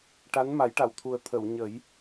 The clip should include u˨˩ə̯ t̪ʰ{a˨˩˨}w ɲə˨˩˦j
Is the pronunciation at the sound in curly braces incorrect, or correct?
incorrect